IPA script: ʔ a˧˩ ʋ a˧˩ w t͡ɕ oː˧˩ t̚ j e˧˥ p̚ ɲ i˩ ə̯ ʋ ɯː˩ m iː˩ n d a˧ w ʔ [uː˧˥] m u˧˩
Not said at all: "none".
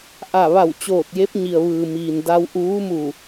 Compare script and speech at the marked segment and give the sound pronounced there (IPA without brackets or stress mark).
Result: uː˧˥